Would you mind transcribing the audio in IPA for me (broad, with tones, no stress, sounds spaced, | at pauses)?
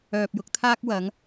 œː˧ p̚ j ʊ˨˥ k̚ t̪ʰ aː˥ k̚ w ɐ˨˧ ŋ